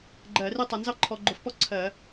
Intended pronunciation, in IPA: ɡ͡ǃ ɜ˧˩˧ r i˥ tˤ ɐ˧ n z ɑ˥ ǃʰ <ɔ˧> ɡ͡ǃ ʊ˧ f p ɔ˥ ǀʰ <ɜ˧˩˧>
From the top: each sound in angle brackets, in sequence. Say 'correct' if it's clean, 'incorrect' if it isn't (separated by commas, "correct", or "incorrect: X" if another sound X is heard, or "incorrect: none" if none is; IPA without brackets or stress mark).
correct, correct